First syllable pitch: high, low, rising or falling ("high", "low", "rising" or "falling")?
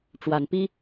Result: rising